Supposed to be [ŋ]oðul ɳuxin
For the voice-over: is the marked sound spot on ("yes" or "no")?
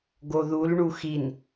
no